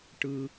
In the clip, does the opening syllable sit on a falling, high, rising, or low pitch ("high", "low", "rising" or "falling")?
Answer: low